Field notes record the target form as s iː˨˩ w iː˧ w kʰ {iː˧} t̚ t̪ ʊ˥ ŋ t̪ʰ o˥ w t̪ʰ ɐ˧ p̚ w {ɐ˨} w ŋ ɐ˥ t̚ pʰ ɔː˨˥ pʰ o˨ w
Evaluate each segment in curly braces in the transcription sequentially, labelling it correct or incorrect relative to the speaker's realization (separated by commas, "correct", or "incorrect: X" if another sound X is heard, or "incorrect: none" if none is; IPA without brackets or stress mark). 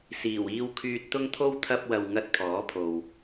incorrect: yː˧, correct